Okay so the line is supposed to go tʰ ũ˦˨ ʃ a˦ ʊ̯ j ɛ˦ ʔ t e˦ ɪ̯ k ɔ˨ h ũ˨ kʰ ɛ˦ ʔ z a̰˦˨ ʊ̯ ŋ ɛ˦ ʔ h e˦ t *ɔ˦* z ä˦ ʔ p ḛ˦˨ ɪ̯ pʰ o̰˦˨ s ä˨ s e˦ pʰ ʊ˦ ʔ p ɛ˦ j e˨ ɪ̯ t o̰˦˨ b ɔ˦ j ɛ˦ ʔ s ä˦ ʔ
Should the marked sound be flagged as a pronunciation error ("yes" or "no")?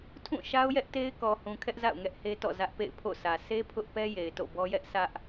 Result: yes